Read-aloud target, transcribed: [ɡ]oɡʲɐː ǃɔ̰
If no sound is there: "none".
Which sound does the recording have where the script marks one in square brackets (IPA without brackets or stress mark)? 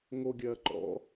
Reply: ŋ